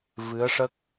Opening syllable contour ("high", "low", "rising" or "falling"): rising